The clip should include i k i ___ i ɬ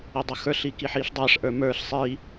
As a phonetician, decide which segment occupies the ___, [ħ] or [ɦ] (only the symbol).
ħ